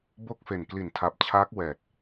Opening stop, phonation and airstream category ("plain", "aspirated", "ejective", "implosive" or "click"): plain